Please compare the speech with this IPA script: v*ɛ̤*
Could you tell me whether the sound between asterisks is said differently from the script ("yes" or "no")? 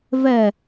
yes